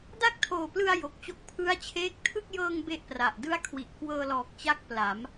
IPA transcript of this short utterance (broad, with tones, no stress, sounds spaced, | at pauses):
d a˥˩ k̚ tʰ oː˨˩ p l ɯ˧ a̯ j o˨˩ k̚ t͡ɕ o˦˥ k̚ pʰ ɯ˦˥ a̯ t͡ɕʰ eː˦˥ k̚ tʰ ɯ˥˩ k̚ j ɤː˧ ŋ b e˥˩ ʔ p r a˨˩ ʔ d ɯ˥˩ a̯ kʰ w i˨˩ ʔ k w ɤː˧ l ɔː˨˩ k̚ t͡ɕ a˦˥ k̚ p l a˩˦ m